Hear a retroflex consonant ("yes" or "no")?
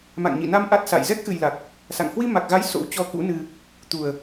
no